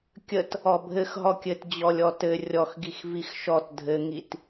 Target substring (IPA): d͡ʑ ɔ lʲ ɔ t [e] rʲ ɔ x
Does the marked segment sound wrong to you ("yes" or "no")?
yes